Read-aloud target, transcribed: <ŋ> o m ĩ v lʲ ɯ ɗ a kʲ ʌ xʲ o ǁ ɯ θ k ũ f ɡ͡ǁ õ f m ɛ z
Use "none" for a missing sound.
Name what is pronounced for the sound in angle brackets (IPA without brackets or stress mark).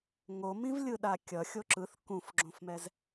ŋ